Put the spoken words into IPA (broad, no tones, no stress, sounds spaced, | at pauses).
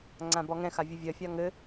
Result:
ŋ͡ǀ ã b ɔ ŋ ɛ̃ x a vʲ ɘ vʲ ɜ fʲ a ŋ ɘ